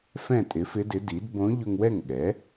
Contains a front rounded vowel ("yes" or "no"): no